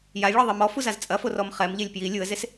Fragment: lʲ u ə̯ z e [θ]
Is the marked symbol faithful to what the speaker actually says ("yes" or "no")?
no